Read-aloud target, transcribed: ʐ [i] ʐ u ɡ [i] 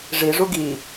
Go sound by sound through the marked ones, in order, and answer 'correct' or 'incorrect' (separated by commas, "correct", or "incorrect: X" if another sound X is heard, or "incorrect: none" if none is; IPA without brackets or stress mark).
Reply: correct, correct